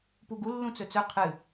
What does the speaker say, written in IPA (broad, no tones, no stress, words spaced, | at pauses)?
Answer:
puɡu lːũt͡sɵt͡sɵ qʰɨ